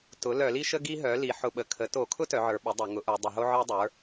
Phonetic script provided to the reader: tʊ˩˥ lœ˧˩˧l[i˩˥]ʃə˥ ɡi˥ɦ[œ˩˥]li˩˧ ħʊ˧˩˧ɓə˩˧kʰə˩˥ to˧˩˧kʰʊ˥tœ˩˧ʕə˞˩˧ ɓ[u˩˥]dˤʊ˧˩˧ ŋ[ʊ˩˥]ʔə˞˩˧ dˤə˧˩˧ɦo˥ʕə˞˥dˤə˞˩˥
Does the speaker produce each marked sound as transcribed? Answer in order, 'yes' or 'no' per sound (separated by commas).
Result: no, yes, no, yes